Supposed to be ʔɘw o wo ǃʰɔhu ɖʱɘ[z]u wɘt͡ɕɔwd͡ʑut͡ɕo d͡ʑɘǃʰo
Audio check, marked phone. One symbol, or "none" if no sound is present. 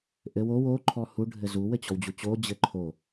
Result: z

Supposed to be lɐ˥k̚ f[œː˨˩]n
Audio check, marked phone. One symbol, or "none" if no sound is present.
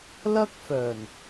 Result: œː˨˩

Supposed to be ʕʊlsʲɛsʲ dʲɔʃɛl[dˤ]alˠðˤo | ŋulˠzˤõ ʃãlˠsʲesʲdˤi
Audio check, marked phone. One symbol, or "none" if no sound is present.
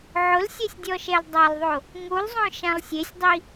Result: dˤ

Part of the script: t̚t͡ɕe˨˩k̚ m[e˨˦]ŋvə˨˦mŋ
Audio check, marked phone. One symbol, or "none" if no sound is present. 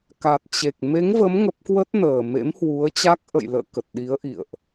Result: e˨˦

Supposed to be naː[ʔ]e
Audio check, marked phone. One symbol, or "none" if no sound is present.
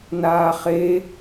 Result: χ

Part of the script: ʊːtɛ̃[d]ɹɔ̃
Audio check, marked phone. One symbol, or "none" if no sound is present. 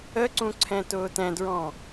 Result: d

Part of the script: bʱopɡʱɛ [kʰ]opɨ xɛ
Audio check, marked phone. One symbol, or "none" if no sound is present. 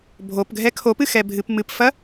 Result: kʰ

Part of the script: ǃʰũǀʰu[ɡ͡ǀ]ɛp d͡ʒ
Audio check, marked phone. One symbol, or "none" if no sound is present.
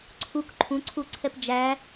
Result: ǀʰ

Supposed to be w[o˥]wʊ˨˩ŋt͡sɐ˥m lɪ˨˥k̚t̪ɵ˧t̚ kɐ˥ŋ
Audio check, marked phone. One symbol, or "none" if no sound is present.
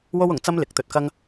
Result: o˥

